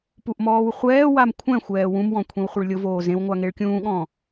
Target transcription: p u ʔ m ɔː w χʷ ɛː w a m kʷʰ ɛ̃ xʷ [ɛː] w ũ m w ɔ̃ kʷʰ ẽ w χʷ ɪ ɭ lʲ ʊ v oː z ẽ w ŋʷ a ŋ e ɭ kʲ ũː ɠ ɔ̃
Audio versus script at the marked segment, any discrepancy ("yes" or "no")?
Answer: no